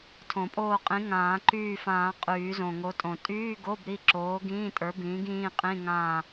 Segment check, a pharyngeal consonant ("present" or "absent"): absent